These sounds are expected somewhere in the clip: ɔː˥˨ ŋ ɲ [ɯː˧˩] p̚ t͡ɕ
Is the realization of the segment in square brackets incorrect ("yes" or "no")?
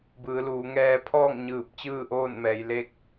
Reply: no